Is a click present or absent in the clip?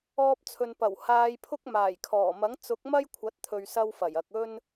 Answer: absent